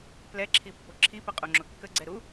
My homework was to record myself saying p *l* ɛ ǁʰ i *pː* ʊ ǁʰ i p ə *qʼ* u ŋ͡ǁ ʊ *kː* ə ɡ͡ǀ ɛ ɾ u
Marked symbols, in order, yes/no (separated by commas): yes, yes, yes, yes